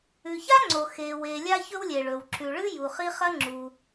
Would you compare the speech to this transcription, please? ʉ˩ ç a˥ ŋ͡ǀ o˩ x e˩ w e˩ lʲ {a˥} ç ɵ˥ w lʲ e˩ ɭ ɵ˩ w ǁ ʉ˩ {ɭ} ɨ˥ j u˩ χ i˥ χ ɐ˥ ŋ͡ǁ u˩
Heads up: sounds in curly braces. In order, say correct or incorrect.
correct, correct

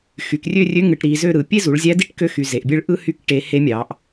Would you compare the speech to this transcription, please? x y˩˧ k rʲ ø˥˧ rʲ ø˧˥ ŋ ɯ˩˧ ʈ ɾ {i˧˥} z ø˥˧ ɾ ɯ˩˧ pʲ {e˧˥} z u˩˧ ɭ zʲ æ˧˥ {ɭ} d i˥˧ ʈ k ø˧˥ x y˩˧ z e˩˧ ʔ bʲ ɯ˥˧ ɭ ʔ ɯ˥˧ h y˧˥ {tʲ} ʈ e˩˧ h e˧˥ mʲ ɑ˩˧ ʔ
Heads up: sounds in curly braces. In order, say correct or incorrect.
incorrect, incorrect, incorrect, incorrect

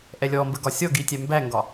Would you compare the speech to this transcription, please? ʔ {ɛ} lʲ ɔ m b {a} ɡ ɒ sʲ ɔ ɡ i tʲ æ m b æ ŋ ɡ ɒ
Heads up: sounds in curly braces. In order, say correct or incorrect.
correct, incorrect

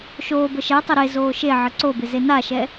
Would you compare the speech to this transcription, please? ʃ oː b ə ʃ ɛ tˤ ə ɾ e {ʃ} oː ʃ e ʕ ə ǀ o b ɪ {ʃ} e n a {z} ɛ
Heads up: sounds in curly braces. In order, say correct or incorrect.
incorrect, incorrect, incorrect

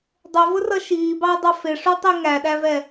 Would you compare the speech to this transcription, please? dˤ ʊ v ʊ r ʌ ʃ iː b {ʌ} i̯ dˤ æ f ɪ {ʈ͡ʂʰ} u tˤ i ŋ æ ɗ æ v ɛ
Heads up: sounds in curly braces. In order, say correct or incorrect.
incorrect, incorrect

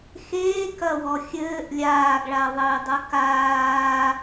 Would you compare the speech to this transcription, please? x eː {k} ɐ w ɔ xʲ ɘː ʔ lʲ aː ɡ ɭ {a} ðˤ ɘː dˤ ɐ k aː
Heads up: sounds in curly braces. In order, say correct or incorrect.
correct, correct

